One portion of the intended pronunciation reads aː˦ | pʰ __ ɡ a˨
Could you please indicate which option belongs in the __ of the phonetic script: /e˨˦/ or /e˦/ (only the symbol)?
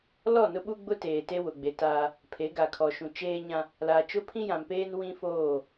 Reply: e˨˦